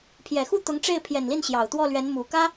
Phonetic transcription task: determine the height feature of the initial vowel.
mid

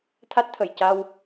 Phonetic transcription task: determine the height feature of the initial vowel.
low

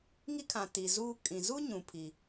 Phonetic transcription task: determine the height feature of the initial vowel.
high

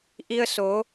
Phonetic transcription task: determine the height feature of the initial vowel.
high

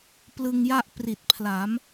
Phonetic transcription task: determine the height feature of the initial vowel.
high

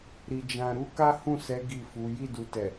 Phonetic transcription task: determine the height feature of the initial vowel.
high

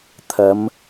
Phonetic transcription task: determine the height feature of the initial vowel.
low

